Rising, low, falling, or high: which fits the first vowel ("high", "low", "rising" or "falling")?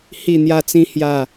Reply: falling